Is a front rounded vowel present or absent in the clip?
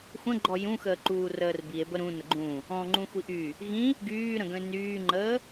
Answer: present